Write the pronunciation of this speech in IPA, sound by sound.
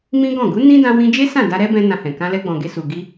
m ĩ˦ ɡ ɔ̃˦˨ ɡ u˨˦ n ĩ˦ d ã˧ w ĩ˧ d͡ʒ e˦ s ã˦˨ d a˧ ɾ ɛ˦ b ɛ̃˧ n ã˧ h ɛ̃˨ k ã˧ l ɛ˧ ɡ͡b ɔ̃˨ ɡ e˧ s u˨ ɡ i˧

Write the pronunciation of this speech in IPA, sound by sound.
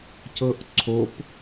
c ɤ ʔ ǀʰ o p

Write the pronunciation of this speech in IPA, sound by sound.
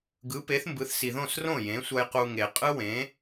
ɡ ɯ˩˥ p e˩˥ θ m b ɯ˩˥ θ s i˩ ð õ˥˩ s r õ˥˩ j ẽ˩˥ sʷ ʌ˧ j q u˧ ŋ e˩ qʼ ɯ˥ w ẽ˩˥

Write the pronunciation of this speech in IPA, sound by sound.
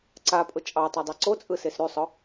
ǀ a pʼ ʊ t͡ʃʼ ɑ tˤ ɑ dˤ e ǀ o t͡sʼ ɯ s e s ɾ y sˤ ʊ

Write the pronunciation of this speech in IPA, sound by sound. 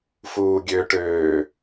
f uː ɡʲ ø ʈ øː

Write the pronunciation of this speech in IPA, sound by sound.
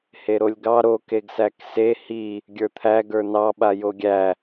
h e ɾ o lʲ ɡ ɑ ɾ o k e ɡ s æ k s e h i | ɡʲ ə˞ t̪ʰ æ ɡ ə˞ n ɑ ɓ a j o ɡʲ æ

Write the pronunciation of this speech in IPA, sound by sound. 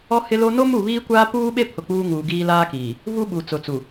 ɔ˦ h ɪ˦ l o˦ n o˦ m u˦˨ β iː˦ kʷ aː˦ p uː˦ ɓ e˦ pʰ ʊ˨ k͡p uː˦ ŋ uː˨ ɡ iː˦ l aː˦ k iː˨ | v u˦ ɓ u˨ t͡s ʊ˨ t͡s u˨

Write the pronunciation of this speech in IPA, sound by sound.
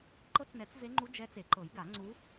ǃ ɤ˧˥ t͡s n ɛ˨˩˦ t͡s v e˧˥ ŋ͡ǃ u˧˥ d͡ʒ ɛ˧˥ t͡s e˨˩˦ ǃ ɤ˨˩˦ j ɡ a˨˩˦ ŋ͡ǀ u˧˥

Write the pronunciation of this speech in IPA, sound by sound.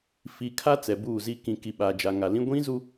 f i˨ kʰ a˦ t͡s ɛ˨ b uː˦˨ z i˦ k ĩ˨ k i˨ ɓ aː˨ d͡ʒ a˨ ŋ a˨ l ĩ˦ ɡʷ ĩ˦ z u˦

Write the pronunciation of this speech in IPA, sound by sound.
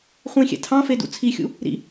χʷ ĩ xʲ ɛ̰ tʰ ɑ̃ f e d ṵ t͡sʰ i xʲ ṵ | ɾ ḭ

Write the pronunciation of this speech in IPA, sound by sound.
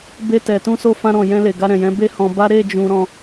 b e˧ t ɛ˨ t ũ˧ s o˧ f ã˧ ɾ ɔ̃˨ j ɛ̃˧ l e˨ ɡ a˧ ɾ ɛ̃˨ j ɛ̃˨˦ b e˦ h ɔ̃˧ b a˦ ɾ e˦˨ d͡ʒ ũ˧ ɾ ɔ̃˧

